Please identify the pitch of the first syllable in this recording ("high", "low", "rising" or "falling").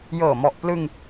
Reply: low